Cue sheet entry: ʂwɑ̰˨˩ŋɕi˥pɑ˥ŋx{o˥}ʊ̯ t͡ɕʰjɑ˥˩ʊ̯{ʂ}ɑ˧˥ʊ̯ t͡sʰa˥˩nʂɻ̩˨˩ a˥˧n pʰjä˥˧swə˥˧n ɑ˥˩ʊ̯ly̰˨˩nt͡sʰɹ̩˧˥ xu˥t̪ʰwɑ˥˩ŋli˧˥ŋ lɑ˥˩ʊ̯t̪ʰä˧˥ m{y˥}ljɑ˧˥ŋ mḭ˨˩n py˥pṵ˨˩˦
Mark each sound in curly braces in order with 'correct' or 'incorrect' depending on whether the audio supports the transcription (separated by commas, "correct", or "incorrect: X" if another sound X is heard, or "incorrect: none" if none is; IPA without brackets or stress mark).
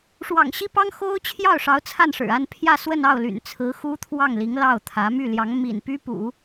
correct, correct, incorrect: y˥˩